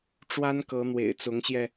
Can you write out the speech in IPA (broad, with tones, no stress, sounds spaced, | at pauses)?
ʈ͡ʂ w a˦ n k ɤ˨˦ n̪ w ḛ˨˩ ɪ̯ t͡s ʊ˨˦ ŋ ɕ j ɛ˧